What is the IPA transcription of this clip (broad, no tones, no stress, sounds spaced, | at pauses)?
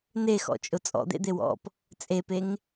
n e x ɔ̰ t͡ʃʼ ʊ t͡sʼ ɔ̰ d̪ ḛ d̪ e w ɔ̰ p | t͡sʼ e p e ŋ